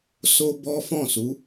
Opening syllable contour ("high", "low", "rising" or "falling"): high